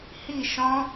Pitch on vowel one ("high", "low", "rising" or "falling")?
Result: falling